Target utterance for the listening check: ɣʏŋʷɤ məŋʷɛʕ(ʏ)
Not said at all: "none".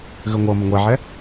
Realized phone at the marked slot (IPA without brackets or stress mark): ɛ